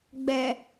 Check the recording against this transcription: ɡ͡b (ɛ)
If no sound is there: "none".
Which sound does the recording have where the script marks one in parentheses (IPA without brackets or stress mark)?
ɛ